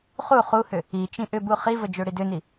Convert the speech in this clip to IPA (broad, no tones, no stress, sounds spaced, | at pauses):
χ u χ u h ʏ | i t͡ʃ ĩ ʔ ʏ b u χ i v ə d͡ʒ ø ɽ i d ø n i